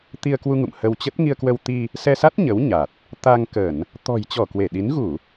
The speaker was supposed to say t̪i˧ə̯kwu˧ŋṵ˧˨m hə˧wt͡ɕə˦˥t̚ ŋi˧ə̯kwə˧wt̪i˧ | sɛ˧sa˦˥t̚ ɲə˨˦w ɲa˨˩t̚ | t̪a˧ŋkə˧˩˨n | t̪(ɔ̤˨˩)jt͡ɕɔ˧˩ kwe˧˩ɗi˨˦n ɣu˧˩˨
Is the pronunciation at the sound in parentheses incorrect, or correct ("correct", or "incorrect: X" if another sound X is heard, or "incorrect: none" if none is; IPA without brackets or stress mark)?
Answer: correct